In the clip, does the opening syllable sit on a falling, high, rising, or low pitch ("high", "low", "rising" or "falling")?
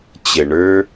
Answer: low